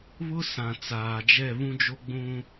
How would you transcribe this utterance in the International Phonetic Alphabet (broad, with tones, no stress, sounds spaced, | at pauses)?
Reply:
β ʊ˦ s ã˨ t͡s aː˨ d͡ʒ ɛ˦˨ β ũ˦ d͡ʒ o˦ ɡ͡b ũ˦